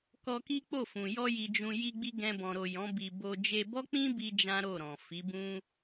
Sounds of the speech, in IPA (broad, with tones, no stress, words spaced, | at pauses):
kɔ˧ki˦k͡po˦˨fũ˨ jɔ˧ji˨d͡ʒũ˨ ji˧ɡ͡bi˧ ɡɛ̃˧bɔ̃˨ɾo˨ jɔ̃˨˦bi˧ bo˧ d͡ʒe˧bɔ˦k͡pĩ˦ bi˦d͡ʒã˦ɾo˦˨ɾɔ̃˨ fi˨˦bũ˦